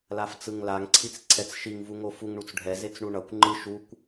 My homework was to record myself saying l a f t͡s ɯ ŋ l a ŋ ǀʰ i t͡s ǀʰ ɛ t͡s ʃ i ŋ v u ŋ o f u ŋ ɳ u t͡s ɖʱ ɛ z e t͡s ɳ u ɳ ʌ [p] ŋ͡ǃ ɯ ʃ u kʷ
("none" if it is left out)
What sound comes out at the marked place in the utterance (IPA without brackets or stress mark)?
kʷ